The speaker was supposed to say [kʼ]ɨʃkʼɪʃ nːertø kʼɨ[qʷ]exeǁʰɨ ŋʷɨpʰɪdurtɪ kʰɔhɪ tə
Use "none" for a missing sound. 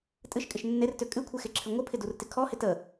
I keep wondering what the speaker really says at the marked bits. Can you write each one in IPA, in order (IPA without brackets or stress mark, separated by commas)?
tʼ, kʷʰ